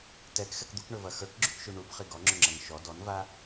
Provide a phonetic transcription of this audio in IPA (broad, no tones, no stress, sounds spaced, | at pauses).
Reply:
t ɛ k x ɛ k d̪ u k ɳ ɵ v ɐ x ə˞ k ɡ͡ǁ ʉ k ʃ ʉ ɳ u b χ i ɡ ɔ ŋ͡ǁ ɵ ŋ͡ǁ ɐ n ʃ ɔ d ɔ n v a